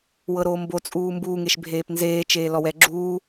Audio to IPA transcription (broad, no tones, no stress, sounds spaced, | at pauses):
w ɤ ɾ oː m b o t͡sʼ uː m b uː ŋ e ʃ bʱ eː p n z eː t͡ʃ eː l ɔ w ɛ ɡ͡ǁ uː